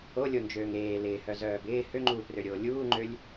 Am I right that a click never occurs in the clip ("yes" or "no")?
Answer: no